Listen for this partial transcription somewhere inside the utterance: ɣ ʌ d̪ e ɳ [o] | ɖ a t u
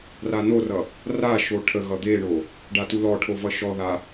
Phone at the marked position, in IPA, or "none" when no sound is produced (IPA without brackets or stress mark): o